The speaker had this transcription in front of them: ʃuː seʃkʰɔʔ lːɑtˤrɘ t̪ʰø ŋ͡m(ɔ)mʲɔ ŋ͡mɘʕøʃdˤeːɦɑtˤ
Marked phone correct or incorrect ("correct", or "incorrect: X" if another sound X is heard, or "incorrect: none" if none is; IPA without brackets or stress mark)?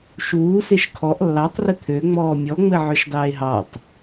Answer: incorrect: ɔː